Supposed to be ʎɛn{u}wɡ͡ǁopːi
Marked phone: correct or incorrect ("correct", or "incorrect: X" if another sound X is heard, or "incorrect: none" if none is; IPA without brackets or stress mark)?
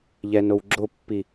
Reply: incorrect: o